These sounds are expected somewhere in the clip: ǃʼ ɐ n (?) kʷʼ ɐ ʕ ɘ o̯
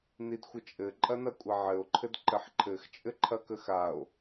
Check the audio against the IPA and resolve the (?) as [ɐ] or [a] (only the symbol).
ɐ